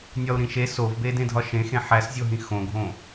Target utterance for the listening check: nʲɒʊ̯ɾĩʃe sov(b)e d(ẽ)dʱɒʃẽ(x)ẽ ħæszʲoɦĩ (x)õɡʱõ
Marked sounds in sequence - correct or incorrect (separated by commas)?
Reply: correct, correct, correct, correct